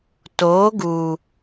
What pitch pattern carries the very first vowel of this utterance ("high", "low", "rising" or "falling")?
rising